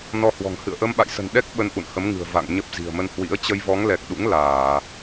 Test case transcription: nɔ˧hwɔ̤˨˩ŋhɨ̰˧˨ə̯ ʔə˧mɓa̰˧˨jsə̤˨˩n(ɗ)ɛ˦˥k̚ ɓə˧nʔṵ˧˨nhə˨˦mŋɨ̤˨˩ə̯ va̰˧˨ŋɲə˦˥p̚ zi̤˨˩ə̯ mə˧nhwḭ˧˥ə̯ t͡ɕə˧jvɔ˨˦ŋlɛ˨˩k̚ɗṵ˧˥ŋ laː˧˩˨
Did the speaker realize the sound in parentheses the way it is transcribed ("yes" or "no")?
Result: yes